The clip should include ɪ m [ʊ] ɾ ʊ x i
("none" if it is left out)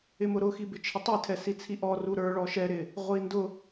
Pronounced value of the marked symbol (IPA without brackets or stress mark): ʊ